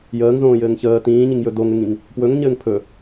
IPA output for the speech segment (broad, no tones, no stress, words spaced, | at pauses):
jəːŋzõːjɘːŋ çəː tĩːɲiŋjɵ doŋɘŋĩŋ | pwɵŋɲɘːŋ pʰɵ